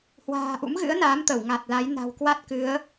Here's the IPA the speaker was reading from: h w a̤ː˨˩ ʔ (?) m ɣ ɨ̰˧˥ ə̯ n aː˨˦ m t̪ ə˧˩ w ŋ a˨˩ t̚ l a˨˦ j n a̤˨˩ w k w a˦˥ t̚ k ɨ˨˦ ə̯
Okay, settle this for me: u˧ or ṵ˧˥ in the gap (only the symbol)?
ṵ˧˥